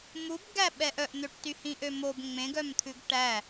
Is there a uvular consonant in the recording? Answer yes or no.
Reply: no